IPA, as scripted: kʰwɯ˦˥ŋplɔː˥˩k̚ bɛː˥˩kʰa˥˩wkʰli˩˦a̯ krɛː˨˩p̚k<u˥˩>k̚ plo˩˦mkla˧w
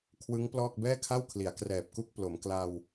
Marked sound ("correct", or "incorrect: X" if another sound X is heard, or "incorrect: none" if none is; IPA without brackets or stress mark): correct